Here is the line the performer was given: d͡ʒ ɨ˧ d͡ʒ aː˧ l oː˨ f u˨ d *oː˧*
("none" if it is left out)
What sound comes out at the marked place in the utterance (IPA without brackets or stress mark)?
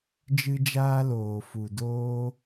oː˧